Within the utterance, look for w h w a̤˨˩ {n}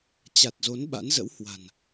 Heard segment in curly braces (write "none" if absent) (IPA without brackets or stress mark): n